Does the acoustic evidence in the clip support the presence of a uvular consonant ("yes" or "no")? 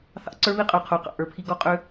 yes